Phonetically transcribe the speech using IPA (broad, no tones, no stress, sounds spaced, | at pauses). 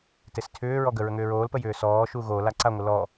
t e s tʰ ʏː ɹ ɔ ɡ ə ɹ ə ŋ ʏː ɹ oː l p ə j ʏː s ɔː ʃ u ɣ o l a ǀ a ŋʷ ə l ɔ